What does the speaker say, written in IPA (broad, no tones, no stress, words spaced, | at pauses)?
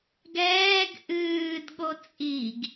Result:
ɡɛːɡ ʔɨːdɠo t͡sʼiɡ